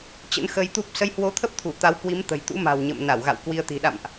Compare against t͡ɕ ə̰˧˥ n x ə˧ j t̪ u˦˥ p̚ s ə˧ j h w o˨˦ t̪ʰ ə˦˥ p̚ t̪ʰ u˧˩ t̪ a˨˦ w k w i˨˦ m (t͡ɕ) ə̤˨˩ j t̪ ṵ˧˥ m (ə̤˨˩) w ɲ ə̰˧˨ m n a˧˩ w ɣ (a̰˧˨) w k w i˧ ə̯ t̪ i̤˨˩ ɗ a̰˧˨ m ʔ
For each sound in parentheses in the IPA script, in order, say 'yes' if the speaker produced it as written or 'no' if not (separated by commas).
no, no, yes